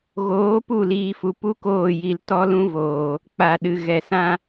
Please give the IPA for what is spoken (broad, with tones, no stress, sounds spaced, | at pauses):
ɣ oː˨˦ p u˦˨ l iː˨ f u˨ p u˦ k oː˦˨ j i˨ l t ɔ˦ l ũ˦ v oː˨ | k͡p a˨ ɗ ɨ˨ ɣ ɛ˨ s ã˦